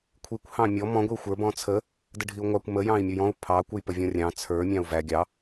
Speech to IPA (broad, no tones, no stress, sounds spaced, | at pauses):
kʷʰ i kʷ h ɑ̃ mʲ ɔ m ɔ̃ ɡʷ i u̯ xʷ ə˞ b ɔ̃ t͡sʰ ə | d ə ɖʱ i u̯ ŋʷ ɑ kʷ m ə j ɑ̃ i̯ mʲ u j ɔ̃ u̯ pʰ ɑ kʷ ə j p ə vʲ ɔ̃ rʲ ɑ̃ t͡sʰ ə˞ mʲ ɑ̃ u̯ v æ ɡʲ ɑ